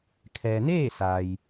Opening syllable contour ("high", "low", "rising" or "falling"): low